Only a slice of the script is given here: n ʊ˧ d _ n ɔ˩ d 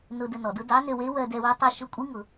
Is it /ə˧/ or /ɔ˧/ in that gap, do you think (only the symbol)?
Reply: ə˧